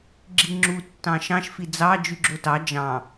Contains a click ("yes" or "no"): yes